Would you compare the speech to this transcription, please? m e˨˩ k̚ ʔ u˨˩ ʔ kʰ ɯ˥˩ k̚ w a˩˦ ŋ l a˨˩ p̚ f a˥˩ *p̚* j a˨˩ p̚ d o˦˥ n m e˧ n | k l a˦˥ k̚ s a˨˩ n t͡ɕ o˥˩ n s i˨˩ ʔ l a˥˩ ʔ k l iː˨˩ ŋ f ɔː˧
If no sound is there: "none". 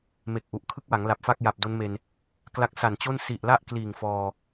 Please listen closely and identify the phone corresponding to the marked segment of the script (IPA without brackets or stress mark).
k̚